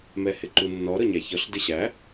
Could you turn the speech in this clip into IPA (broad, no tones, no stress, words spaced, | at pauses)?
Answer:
mɛhɪǃunːɔ ɾɤɲæçɤɬ dɪɕæ